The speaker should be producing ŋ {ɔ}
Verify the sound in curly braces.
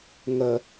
incorrect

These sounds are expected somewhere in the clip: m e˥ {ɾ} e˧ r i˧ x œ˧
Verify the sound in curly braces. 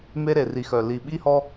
correct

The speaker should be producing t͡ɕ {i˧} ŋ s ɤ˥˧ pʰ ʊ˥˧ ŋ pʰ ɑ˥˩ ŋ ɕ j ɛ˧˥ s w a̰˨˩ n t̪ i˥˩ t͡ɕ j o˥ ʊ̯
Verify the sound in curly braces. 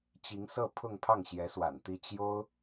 incorrect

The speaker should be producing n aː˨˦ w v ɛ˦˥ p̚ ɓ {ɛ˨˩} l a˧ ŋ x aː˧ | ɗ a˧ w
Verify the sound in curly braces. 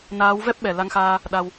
correct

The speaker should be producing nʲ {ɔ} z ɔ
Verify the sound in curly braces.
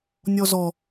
correct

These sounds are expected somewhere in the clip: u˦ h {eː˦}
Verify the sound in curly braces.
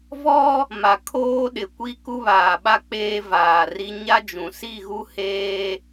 correct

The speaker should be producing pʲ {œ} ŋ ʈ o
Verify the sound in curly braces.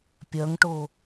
correct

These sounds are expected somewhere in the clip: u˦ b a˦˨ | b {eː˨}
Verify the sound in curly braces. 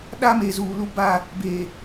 correct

